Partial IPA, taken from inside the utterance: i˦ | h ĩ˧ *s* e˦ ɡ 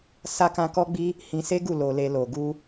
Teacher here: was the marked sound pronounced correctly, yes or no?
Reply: yes